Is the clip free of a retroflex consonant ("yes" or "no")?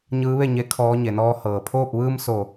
yes